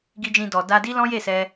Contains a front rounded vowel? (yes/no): no